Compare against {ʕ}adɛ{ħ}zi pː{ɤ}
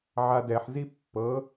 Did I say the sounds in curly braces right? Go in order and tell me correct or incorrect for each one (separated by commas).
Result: correct, correct, correct